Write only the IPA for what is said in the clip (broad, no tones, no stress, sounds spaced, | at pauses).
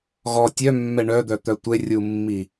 ɣ ɔ tʲ œ mː ɛ ɳ œ d̪ œ t̪ œ tʷ e rʲ u mː i